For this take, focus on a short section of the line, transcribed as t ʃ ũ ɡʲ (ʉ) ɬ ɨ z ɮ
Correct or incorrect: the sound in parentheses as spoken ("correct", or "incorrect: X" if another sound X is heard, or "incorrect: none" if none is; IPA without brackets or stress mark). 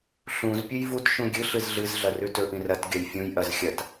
incorrect: ɨ